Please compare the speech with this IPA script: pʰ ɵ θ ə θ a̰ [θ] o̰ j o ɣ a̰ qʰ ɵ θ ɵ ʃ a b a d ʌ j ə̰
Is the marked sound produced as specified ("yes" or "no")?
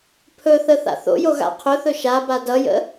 yes